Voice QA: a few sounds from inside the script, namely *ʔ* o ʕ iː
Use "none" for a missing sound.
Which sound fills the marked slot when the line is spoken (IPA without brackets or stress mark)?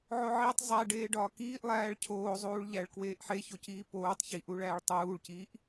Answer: ʕ